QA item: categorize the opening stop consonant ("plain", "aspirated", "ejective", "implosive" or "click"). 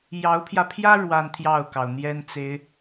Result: aspirated